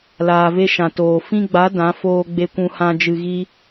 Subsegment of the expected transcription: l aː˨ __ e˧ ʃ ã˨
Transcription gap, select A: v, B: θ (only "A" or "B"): A